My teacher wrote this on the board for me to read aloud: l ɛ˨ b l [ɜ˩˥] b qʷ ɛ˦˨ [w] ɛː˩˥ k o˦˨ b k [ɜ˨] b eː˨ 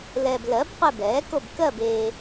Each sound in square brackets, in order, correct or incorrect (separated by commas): correct, incorrect, incorrect